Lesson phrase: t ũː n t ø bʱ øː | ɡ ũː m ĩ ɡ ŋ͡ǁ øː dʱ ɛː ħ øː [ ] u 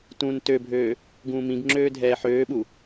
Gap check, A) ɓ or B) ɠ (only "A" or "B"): A